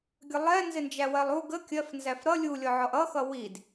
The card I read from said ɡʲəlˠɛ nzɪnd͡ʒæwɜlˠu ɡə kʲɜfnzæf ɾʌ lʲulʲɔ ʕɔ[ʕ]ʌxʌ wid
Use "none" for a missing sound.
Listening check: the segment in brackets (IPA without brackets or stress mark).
ʔ